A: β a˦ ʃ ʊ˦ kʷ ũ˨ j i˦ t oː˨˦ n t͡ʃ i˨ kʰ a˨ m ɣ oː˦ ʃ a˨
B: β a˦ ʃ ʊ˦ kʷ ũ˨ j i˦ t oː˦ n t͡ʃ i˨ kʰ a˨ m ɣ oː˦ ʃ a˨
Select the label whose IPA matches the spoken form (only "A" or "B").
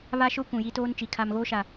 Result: B